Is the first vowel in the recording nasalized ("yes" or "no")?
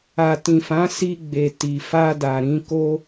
no